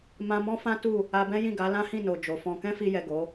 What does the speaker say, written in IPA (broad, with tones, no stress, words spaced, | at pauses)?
mã˧mɔ̃˦fã˦tu˦˨ | a˧bɛ̃˦jĩ˦˨ɡa˨˦ lã˦hĩ˦˨no˨ d͡ʒo˨fɔ̃˧ kɛ̃˦fi˧jɛ˨ ɡo˨˦